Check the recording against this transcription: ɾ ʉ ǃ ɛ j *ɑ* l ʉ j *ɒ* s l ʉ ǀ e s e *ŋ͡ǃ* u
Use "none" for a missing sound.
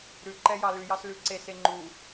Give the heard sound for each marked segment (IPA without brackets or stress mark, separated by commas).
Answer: ɑ, ɑ, ŋ͡ǃ